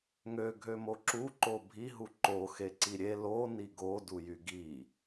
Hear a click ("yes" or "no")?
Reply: yes